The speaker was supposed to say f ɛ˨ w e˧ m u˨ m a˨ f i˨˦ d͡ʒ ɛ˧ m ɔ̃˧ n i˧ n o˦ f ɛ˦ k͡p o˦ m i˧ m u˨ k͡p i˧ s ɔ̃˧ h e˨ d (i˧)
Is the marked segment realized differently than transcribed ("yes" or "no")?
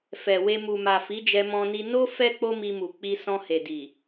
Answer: yes